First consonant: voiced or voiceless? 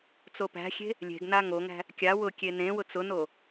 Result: voiceless